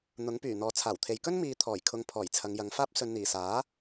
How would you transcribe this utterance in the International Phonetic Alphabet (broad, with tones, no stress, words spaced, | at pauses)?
n̪ʊ˨˥ŋpyː˨˩n̪ɔː˨ t͡sʰaː˨˩wt̪ʰe˨j kɵ˥nmiː˨t̪ʰɔː˨˩jkʰʊ˨˧ŋ pʰɔː˨˩j t͡sʰɐ˨˧ŋjɐ˨˧ŋfaː˥p̚ sɵ˨nn̪iː˨˩saː˨˥